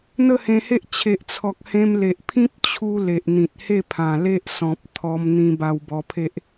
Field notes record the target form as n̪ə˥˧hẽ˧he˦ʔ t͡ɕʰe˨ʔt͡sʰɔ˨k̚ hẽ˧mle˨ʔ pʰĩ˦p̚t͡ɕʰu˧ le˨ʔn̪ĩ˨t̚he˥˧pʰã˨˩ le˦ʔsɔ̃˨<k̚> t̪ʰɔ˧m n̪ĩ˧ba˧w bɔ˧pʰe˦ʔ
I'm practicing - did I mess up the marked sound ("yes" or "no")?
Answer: yes